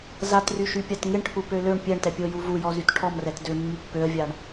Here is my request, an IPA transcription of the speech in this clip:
zatryʃypʲat ŋɪɳʈʰupø løɳ pʲɛɳtɛpʲoju vujɔzyt ʈʰɔmrɛt dømːy pːøə̯vʲaɳ

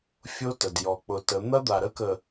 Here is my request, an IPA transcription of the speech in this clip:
fʲo˦tə˨d jɔ˨k͡pʊ˨tə˨˦ n̪ɐ˦d̪a˨ɾə˦kə˨

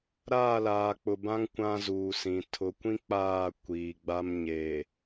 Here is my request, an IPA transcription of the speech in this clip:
ɾaː˦˨laː˨k͡pʊ˨bã˦ŋ kʷã˦zuː˨sĩ˨ tʰʊ˨kʷĩ˦ k͡paː˦˨ kʷiː˨ɡ͡ba˦m ɲe˨

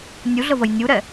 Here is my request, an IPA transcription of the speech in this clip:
nʲuɮəvəj nʲuɾɛ

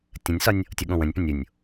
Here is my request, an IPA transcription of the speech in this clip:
tʲə̃nʲsɒnʲ | tʲoɠõwə̃nʲpə̃ nʲunʲ

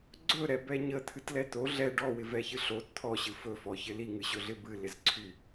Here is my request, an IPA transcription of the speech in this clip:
ɡ͡ǀɵɾɛbɛ ɲət̪ʰɨtlɛ t̪o ɮɛ ɖɔwɪvɛçɨ ɬot t̪ʰɔɕɨ fɵfɔçɪ liŋɨɕɵɮɪ bɨlɪzǀʰy

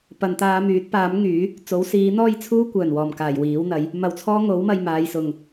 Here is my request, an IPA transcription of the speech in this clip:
pɐ˨nt̪aː˧myː˨˥t̚ paː˨˥m ŋyː˨˥ | t͡so˨˥wsiː˨˥n̪ɔː˥jt͡sʰuː˥ kʷœː˨˩nwɔː˨˩mkaː˨˩j wiː˨˥wn̪ɐ˨˥j | mɐ˧wt͡sʰɔː˥ ŋo˨˥w mɐ˧jmaː˨˧j sʊ˨ŋ

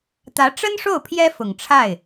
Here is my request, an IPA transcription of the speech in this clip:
t̪ä˧˥ʈ͡ʂə˥nʂo˥˩ʊ̯ pʰjɛ˥fʊ˨˩ŋʈ͡ʂʰa˥˩ɪ̯

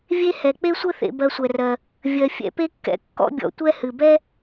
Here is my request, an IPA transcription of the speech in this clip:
vʲe˥hɛ˩ k͡pe˥sʷɘ˥θḛ˨ bɜ˨sʷɛ˩rɜ˩ | vʲɜ˩fʲɛ̰˨pe˦kːɛ̰˨ kːɔ̰˦bʲɔ̰˨ tʷɛ˦hɨ˩bɛ˥

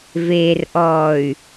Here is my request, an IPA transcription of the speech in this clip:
veː˨rʔɔː˨y̯

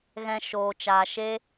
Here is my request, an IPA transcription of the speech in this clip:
ɣɛ̃˧ ʃoː˨t͡ʃaː˨ ʃe˦

